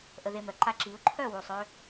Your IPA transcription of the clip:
ʔə˧ðe˧mœ˩ǃa˥˩ ǁi˩˥ʊ̯ ǃʰœ˥˩wu˩sˤ ø˧

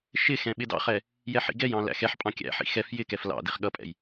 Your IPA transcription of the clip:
ʃɪxɛ̃ ɓɪdɑ̰χɛ | jɛħḭɡɛjɑ̃ læ̰xɛħpʼɑ̃ kʲæ̰ħḭ xɛf jɪkɛf lɑ̰diχ ɠʌpʼɛ̰j

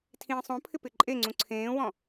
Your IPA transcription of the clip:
tʰĩːsˤõpʰɪ pɪǃʼeŋ͡ǀũ ǀʰẽːwɔ̃

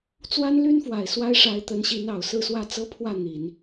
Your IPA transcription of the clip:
t͡swa˥nly˥nfwa˨˩ɪ̯ swa˥ɪ̯ʂa˧˥ɪ̯t̪ə˧˥nɕi˧˥n ɑ˨˩ʊ̯sɹ̩˥˧swä˥˩ t͡sɤ˥pʰwä˥˩n̪i˨˩˦n

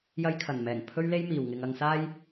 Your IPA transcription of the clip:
jɐ˧jkʰɐ˨˩nmɛː˨˩ŋ pʰɵ˥ɥle˥jmiː˨wŋɪ˧ŋ ɐ˧ŋsaː˥j

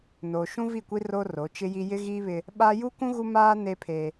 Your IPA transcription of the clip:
noː˨ʃũ˦vi˦˨kʷi˦ ro˦ro˨˦t͡ʃɪ˦ji˦ jɪ˦ɣiː˦βɪ˦ | ɓa˦ ju˦kũ˦ ɣu˦maː˦ ne˦pʰe˦

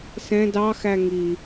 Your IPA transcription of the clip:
sɛ̃ dɑ xæŋi

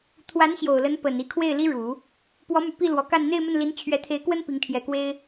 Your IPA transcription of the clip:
t̪ʰwa˧˥nɕjo˨˩ʊ̯lə˧˥n pə˨˩n i˧˥kʰwe˥˩ɪ̯li˥ ɻu˨˩˦ | pwɔ˧˥my˨˩ pi˥˩ lwɔ˧˥ka˥˧n n̪e˥˧ɪ̯mə˥˩nli˧˥n t͡ɕʰɥɛ˧˥t̪ʰe˧˥ɪ̯kwə˥n pi˧˥ŋt̪ʰjɛ˧˥kwe˥ɪ̯

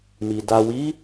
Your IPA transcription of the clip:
mi˨ da˨wi˨˦

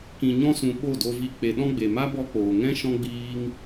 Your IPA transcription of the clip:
kĩ˨ɲɔ̃˧sũ˨ ɓo˦˨do˧vi˧ k͡pe˨ɗɔ̃˧ɡ͡be˨ ma˦bɔ˧k͡poː˨ŋɛ̃˦ ʃɔ̃˦ɡ͡biː˦ŋ

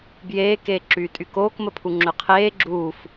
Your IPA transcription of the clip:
bjeː keːǁyːtʼykoːk məpʰuŋ͡ǁøqʰeː ɡ͡ǁuːf

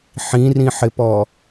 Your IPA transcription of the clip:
ħĩrĩħɪpɔ

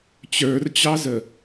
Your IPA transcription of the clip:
t͡ɕə˞rt͡ɕɑzə

